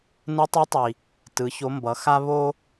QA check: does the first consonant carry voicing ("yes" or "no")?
yes